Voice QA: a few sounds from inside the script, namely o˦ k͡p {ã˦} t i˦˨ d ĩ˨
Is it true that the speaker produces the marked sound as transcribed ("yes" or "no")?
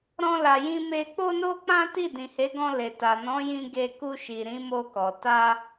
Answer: yes